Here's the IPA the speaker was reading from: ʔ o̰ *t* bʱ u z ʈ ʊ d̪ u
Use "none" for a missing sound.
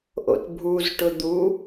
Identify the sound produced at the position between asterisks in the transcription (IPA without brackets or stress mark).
t